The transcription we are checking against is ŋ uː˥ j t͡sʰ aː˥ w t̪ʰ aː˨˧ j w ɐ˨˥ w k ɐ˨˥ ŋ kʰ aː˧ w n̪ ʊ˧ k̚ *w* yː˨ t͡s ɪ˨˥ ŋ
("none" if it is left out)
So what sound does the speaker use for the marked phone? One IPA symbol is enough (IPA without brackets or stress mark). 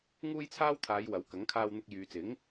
j